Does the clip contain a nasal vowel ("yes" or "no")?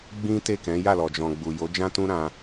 yes